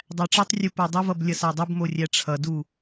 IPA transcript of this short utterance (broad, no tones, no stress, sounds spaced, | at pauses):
dˤ æ ʈ͡ʂ ʌ tˤ rʲ u p o dˤ ə v ʌ b lʲ ʌ s a dˤ ʌ b m o rʲ æ ʈ͡ʂʰ ʌ d u